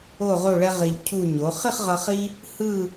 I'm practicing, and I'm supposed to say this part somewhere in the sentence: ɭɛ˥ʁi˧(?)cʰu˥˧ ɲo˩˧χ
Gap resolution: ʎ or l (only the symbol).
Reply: ʎ